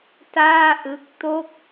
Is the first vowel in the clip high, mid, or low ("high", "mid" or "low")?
low